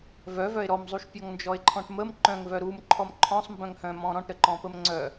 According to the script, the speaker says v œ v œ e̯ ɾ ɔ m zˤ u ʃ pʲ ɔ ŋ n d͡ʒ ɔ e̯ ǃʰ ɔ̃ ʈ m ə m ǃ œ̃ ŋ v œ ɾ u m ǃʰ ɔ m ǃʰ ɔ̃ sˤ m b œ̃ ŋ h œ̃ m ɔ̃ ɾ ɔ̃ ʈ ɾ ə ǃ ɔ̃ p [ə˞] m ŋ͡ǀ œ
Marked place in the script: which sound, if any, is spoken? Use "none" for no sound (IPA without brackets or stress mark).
ə